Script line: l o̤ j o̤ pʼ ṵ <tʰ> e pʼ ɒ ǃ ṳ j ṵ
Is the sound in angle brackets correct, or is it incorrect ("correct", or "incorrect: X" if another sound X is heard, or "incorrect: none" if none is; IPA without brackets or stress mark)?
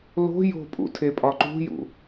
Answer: correct